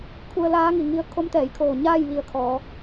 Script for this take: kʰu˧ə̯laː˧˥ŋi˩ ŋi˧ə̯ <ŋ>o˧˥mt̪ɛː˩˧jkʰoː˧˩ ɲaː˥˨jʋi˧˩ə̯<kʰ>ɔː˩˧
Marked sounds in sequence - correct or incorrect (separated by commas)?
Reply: incorrect, correct